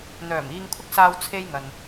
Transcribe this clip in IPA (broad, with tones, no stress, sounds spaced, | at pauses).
n̪ œː˨˩ m iː˧ ŋ kʷʰ ɪ˥ k̚ s aː˧ w t͡sʰ e˧ j ŋ ɐ˨ n